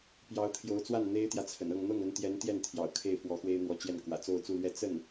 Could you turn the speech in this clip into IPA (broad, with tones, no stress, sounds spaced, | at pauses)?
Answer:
p j ɑ˧˥ ʊ̯ t̪ʰ j o˧˥ ʊ̯ t͡s w a˥˩ n n̪ e˥ ɪ̯ t̪ j ä˨ t͡sʰ ə̰˨˩ n ɤ˥˧ ŋ n̪ ɤ˥˩ ŋ ə˧˥ n t̪ j ɛ˧˥ n t̪ j ɛ˥˩ n t̪ʰ j ɑ̰˨˩ ʊ̯ kʰ e˥˩ ɪ̯ f w ɔ˧˥ x w e˥ ɪ̯ n̪ w ɔ˧˥ t͡ɕ j ɛ˥˩ n k w ä̰˨˩ t͡s o˥˧ ʊ̯ t͡s u˥˧ l ɥ ɛ˥˧ t͡s ə˥˩ n